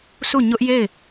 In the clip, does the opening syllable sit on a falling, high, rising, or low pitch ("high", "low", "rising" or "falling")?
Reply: falling